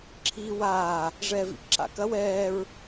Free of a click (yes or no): no